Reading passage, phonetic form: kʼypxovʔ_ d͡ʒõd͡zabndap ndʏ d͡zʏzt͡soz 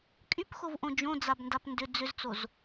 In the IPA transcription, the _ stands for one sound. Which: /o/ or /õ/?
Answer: õ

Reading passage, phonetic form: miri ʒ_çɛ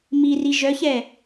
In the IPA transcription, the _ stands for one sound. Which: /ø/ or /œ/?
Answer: œ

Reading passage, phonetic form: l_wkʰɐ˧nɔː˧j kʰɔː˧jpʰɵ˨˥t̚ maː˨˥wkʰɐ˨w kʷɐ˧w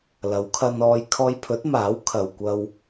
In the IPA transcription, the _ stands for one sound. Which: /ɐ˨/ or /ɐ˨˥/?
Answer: ɐ˨˥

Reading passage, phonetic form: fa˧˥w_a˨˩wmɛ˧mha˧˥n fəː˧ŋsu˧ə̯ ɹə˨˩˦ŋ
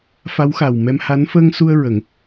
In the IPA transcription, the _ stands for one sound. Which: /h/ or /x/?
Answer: x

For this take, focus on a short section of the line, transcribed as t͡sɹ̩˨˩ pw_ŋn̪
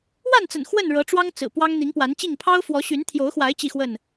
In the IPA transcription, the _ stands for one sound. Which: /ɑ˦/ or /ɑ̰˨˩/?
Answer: ɑ˦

